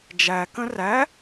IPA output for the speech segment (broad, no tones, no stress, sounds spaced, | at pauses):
d͡ʒ æ k ə̃ r æ